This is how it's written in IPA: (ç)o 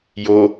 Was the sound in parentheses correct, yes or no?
no